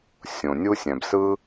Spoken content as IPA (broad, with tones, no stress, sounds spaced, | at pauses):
sʲ õ˨ nʲ u˦ sʲ æ̃˨ b s ɯ˦